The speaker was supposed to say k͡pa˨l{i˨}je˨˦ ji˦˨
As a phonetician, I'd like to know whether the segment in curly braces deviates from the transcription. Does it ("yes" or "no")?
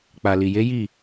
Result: no